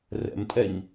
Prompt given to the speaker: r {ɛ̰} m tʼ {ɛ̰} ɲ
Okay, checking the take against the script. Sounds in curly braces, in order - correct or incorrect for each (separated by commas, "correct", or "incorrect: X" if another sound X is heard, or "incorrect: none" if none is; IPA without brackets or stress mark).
correct, incorrect: ɛ